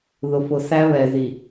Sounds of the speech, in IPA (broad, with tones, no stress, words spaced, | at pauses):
ðʊ˨fʊ˨ sæ˦βɛ˨zi˨